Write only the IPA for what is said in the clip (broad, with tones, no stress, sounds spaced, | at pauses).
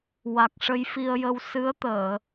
w a˨˩ k̚ ʂ ə˧ j f i˧ ə̯ j ə˧ w s ɨ˧˥ ə̯ t̪ əː˨˩˨